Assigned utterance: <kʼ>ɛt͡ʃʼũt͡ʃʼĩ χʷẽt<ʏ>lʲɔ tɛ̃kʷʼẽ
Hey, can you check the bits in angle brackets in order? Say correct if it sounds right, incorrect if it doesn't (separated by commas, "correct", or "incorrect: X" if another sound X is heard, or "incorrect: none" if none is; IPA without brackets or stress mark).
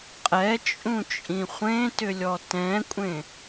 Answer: incorrect: qʼ, correct